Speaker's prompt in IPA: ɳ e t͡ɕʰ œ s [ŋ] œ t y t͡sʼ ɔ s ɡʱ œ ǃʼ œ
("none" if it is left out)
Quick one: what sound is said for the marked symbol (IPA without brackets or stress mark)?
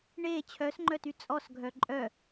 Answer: ŋ͡ǃ